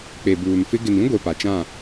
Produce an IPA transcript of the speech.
k͡p e˨ b uː˨ n f ɪ˦ ɡ ɪ˨ n ĩ˦ ɡʷ e˨ p a˨ t͡ʃ ã˦˨

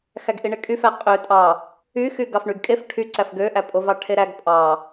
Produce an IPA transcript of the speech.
x æ ɡ ʔ i ɳ e kʼ y f æ qʼ ø tʼ ɑ | y x y ɡ ɑ f ɳ y ɡ kʼ e f ʈʰ y ǀ æ f ɡ ø ʔ æ pʼ o v ɑ ʈʰ e ɾ æ ɡ pʼ ɑ

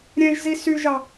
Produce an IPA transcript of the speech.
ɾʲ ẽ ʒ z i s y ʒ ɑ

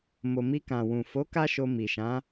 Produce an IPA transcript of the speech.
m o˨ m i˧ k ã˨ w ũ˨ f o˨˦ k a˦ ʃ o˧ m i˨ ʃ ã˨˦

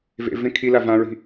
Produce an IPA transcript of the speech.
v ḛ v ẽ kʰ i l a v ã ɹ i̤

